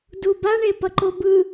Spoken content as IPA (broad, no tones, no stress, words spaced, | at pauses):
duba ɳepʌǃobɯ